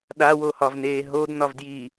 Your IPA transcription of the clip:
ɗ a w o h ɒ v n eː ɦ o d n ɒ v d j iː

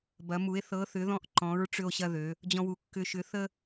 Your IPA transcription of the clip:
b ɐ˩˧ m u˩˧ e̯ θ ɤ˨˥ θ ʏ˨˥ ð ɔ̃˦ ʔ ǃ ɔ̃˨˥ ɹ ʈ͡ʂ ʏ˦ o̯ ɕ ɐ˦ ð ø˩˧ | d͡ʑ ɔ̃˦ w u˨˥ kː ʏ˦ ʃ ʏ˨˥ θ ə˦

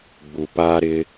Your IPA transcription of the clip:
ɡ͡b u˨ p aː˦ ɾ ɪ˦

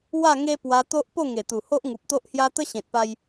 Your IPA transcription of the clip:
w a˥˧ ŋ e˦ p w a˧ t̪ o˦ ʔ p o˥˧ ŋ e˨˩ t̪ u˨˩ h o˦ ʔ ŋ u˨ p̚ t̪ o˦ ʔ h j a˦ t̪ ə˦ ɕ ẽ˨ t̚ p a˧ j

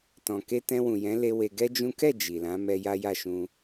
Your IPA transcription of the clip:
t ɔ̃˨ k e˧ t ɛ̃˧ w ũ˨ j ɛ̃˨˦ l e˧ w e˧ ɡ ɛ˦ d͡ʒ ũ˦ k ɛ˦˨ d͡ʒ i˨ l ã˨˦ m ɛ˧ j a˦ j a˦˨ ʃ ũ˧

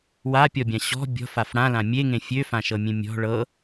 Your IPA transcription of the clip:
w a pʲ ɔ bʲ ã ɕ ɔ̤ bʲ ɔ̤ f a f ɽ ã l ã mʲ e ŋ ẽ fʲ ø f ã ʃ ɤ mʲ ẽ mʲ ɔ̤ ɭ ɤ

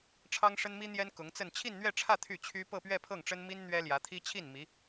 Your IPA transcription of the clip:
ʈ͡ʂʰ ɑ˥ ŋ ʂ ə˥ n m i˥ n̪ j ɛ˥ n k ʊ˧˥ ŋ t͡s ə˥˧ n t͡ɕʰ i˥˧ n n̪ ɥ ɛ˥˧ ʈ͡ʂʰ ä˥˧ t̪ʰ y˥˩ t͡ɕʰ y˥ p ɤ˥˧ p ɥ ɛ˥˧ pʰ ɤ˥˩ ŋ ʈ͡ʂ ə˥ n m i˥ n n̪ ɥ ɛ˥ l j ä˧˥ t̪ʰ i˥ t͡ɕʰ i˥˩ n m i˧˥

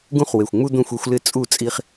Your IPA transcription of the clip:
ɡ ũ˦ χ w e˨˩ xʷ ŋ͡m u˦ d̪ õ˥˨ xʷ e˦ xʷ l ɪ˥˨ t͡sʼ u˥˨ t͡sʼ i˦ χ

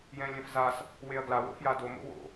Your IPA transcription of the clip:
j ɛ̃ lʲ ɛ̃ f z a s | w e ɐ̯ ɡ l a w o̰ f j a d o m o̰ w o̰

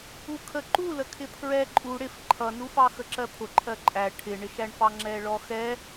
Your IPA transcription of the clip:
u kʰ ə ǃ u l ə kʰ ɪ pʰ ɹ ɛ ǃʼ u ɽ ɪ f ǃʰ ʌ n u f ɑ x ə ǁ ɜ pʰ ʊ ǃʰ ɜ ǃʼ æ ʈʰ ɪ ɳ ɪ ʃ æ ɳ f ɑ ŋ͡ǁ ɛ ɭ ɔ x ɛ

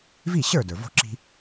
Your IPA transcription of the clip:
v i˥˩ ɕ ə˞˥˩ d ə˞˩ v o̤˧ ǁ i̤˧

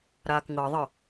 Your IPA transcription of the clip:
ɾ aː k ŋ ɤ ðˤ ʌ

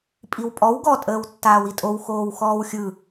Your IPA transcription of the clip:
pʼ i w pʼ ɔ w ɡ ɔ tʼ əː w tː aː w i tʼ o w x oː w x ɔː w xʲ ɯ

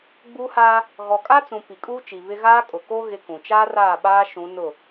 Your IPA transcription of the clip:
ɡ͡b uː˦ h aː˦ | ɣ ɔ˨ kʼ a˦ t͡s ũ˨ p i˨ kʼ uː˦ t͡ʃ i˨ β ɪ˦ ɣ aː˦ kʼ ʊ˨ k o˦ ɣ ɪ˦ k ũ˨ t͡ʃ aː˦ r aː˦˨ ɓ aː˦ ʃ ũ˨˦ n ʊ˦˨

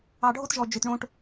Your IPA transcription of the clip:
ɑ˨ ɖʱ o˦ t ʒ ɔ˨ d͡ʒ ø˨ t ɳ õ˧ ʈ

